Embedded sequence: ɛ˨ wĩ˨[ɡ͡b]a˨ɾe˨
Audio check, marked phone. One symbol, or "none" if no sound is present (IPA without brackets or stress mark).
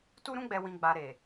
ɡ͡b